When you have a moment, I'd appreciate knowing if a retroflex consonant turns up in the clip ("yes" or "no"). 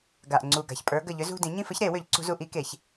no